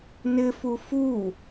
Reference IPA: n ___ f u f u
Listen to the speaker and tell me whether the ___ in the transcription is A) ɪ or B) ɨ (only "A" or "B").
A